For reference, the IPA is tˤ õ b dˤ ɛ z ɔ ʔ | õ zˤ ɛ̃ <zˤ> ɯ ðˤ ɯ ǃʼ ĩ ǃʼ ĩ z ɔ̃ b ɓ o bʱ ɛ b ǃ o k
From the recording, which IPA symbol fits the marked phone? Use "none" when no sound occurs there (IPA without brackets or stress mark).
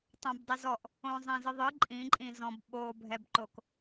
z